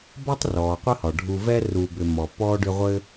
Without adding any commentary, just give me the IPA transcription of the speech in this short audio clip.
b ɒ˥ tˤ r ɔː˩ qʷ ɘ˦ h ɒ˩ ɖʱ u˨ v ɛ˥ r u˨ b ʏ˨ m ɔ˩ p ɔː˥ ɖ ʏ˦ ʁʷ ɘ˥

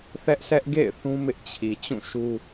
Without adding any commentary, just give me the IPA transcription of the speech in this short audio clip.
θ ɛ˦ ʔ sʰ ɛ˦ ʔ ɡ ḛ˦˨ ɪ̯ θ ũ˦ m ɪ˦ ʔ t͡ɕʰ i˨ t͡ɕ ũ˦˨ ʃ u˦

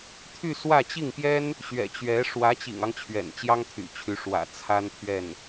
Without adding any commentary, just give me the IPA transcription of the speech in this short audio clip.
t̪ʰ y˥˧ s w ä˥˧ t͡ɕ i˥˩ ŋ p j ɛ˥ n | ɕ ɥ ɛ̰˨˩ t͡ɕ ɥ ɛ˧˥ ʂ w ä˧˥ t͡ɕ ḭ˨˩ ŋ ɑ˦ ŋ t͡ɕʰ ɥ ɛ̰˨˩ n t͡ɕ j ɑ˥ ŋ t̪ʰ y̰˨˩ t͡ɕʰ y˧˥ ʂ w ä̰˨˩ t͡sʰ a˥ n t̪ʰ ɥ ɛ˥˩ n

